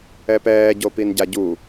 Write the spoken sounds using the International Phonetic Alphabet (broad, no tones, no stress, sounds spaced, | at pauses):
ɛ p ɛː ɟ o p i n ɟ a ɟ u